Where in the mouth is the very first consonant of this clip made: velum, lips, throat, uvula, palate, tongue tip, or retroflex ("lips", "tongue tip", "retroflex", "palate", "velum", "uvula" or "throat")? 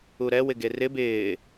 tongue tip